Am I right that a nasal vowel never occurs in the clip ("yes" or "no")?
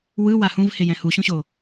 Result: no